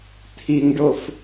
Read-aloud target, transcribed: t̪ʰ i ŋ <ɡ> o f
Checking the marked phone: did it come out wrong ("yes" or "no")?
yes